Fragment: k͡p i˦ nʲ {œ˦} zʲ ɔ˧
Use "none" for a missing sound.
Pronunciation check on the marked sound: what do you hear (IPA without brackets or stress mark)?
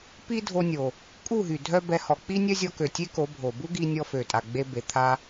œ˦